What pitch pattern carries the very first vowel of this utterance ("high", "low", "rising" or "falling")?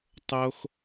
high